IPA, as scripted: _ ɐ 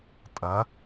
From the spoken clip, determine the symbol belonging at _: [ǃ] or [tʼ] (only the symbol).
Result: tʼ